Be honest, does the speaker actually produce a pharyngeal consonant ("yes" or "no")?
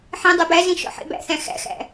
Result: yes